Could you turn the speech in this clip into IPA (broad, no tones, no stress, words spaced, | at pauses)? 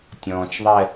tʲɔ̃ːt͡ʃðˤɛ